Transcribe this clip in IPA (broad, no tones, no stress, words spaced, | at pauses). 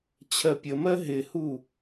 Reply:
t͡ɕʰɜpʲəmɜ ɦɪhu